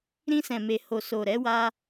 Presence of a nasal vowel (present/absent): present